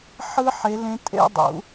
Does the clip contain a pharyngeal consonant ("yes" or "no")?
yes